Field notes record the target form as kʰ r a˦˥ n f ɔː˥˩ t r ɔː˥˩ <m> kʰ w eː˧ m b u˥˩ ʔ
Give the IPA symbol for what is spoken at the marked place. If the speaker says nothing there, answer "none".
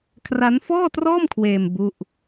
m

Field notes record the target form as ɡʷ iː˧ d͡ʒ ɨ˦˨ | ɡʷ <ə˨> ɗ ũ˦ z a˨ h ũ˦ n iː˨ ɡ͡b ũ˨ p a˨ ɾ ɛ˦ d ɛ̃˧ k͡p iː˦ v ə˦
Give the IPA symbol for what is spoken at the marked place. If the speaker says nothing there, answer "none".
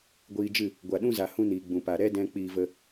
a˨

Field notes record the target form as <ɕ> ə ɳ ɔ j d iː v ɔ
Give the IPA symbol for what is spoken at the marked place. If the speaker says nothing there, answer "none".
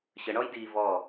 ɕ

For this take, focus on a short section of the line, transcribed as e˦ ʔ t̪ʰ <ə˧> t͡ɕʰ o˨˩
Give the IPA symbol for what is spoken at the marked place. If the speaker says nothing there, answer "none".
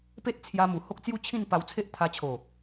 a˧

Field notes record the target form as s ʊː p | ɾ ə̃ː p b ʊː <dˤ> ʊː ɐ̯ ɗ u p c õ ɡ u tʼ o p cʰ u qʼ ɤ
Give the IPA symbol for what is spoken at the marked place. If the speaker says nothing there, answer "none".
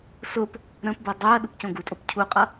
dˤ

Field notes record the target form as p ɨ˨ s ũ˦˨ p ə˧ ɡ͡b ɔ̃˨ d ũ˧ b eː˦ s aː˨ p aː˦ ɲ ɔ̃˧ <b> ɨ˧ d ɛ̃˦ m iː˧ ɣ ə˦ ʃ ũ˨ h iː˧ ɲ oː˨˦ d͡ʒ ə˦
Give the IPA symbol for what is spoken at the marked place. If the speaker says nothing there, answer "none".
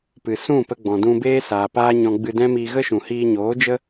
ɡ͡b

